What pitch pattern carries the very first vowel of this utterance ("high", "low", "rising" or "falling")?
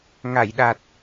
low